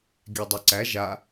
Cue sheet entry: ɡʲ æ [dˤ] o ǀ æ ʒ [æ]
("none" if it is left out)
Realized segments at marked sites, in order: dˤ, a

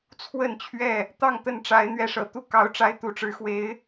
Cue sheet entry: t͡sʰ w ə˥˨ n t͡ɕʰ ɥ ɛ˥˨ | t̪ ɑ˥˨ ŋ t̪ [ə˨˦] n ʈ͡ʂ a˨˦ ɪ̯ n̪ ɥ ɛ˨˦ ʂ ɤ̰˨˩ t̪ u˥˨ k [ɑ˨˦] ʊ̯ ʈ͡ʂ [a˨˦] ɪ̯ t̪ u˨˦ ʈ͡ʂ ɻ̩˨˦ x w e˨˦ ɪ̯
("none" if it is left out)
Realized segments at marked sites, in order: ə˥˨, ɑ˦, a˦

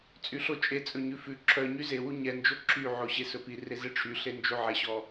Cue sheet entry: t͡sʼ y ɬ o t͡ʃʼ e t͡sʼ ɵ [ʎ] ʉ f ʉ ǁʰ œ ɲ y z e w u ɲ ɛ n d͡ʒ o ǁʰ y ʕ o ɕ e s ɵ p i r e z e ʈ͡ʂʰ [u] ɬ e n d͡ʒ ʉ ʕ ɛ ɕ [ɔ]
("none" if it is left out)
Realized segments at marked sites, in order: ɲ, y, ɔ

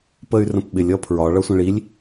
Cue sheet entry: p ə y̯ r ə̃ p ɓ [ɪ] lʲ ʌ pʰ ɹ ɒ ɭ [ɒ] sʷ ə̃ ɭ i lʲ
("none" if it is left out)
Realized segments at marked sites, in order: ɪ, ʌ

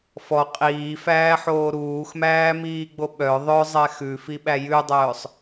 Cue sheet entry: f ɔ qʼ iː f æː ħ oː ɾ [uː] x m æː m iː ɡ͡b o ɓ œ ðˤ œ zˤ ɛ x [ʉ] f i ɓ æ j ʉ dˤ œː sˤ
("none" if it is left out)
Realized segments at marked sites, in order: uː, ʉ

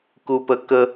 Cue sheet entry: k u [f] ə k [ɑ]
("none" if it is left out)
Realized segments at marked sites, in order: p, ə

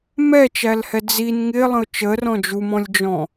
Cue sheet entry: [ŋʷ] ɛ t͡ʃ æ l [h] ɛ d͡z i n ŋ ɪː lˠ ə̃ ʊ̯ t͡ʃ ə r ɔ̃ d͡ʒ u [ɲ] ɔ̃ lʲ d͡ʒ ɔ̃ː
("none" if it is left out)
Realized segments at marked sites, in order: m, h, m

